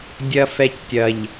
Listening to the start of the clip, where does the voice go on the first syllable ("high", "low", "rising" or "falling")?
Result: low